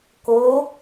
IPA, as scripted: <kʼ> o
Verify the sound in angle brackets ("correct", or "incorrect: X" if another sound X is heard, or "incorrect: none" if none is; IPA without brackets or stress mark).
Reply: incorrect: k